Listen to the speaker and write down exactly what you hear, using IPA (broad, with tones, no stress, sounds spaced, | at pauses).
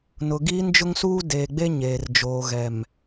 n ʊ˨ ɡ iː˦ n d͡ʒ ʊ˦ ŋ s uː˦ d eː˨ ɡ͡b e˦ ɲ eː˨ r d͡ʒ oː˨ ɣ ɛ˨ m